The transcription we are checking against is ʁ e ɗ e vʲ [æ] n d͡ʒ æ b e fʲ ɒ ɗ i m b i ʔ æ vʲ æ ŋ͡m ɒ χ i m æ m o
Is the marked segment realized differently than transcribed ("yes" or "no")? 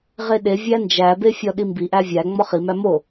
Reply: no